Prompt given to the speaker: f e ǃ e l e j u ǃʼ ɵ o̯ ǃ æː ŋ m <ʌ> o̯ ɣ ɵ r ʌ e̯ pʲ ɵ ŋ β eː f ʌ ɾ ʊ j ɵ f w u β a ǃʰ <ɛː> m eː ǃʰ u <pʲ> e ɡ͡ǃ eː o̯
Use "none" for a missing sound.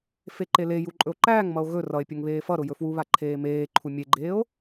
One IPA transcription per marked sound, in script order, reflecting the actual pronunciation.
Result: ʌ, eː, mʲ

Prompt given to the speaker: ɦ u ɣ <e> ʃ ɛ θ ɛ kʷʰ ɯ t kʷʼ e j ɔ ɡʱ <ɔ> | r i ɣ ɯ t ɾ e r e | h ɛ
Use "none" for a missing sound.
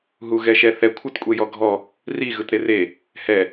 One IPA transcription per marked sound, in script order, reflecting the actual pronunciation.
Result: ɛ, ɔ

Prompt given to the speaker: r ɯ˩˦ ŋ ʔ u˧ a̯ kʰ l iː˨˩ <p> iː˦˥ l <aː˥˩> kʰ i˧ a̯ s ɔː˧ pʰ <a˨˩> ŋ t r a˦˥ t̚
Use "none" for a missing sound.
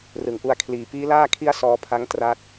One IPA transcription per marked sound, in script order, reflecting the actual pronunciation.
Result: p, aː˥˩, a˦˥

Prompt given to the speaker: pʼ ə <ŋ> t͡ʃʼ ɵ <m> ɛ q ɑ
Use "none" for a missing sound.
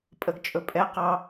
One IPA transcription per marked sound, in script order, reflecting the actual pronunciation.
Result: ɡ, pʼ

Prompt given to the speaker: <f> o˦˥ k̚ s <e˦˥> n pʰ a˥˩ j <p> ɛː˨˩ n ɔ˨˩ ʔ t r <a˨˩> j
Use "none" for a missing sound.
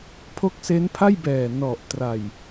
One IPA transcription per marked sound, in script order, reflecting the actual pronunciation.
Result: pʰ, e˦˥, b, a˨˩

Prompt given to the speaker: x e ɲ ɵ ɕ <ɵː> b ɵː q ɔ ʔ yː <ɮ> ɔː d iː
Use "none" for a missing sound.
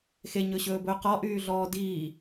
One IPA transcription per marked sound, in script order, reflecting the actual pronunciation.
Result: ɵː, ɮ

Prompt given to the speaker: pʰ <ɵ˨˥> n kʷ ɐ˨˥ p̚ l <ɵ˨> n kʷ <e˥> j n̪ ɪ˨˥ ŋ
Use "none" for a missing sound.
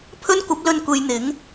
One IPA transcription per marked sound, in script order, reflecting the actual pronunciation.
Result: ɵ˥, ɵ˧, e˨˧

